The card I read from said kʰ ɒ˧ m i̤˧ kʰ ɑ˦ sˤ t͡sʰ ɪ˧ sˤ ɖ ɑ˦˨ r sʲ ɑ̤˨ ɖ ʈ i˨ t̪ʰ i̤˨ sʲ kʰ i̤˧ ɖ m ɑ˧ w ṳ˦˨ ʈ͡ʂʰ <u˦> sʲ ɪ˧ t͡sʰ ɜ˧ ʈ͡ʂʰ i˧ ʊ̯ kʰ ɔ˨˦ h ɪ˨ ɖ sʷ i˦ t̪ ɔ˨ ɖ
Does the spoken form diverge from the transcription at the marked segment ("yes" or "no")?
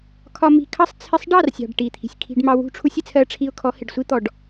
no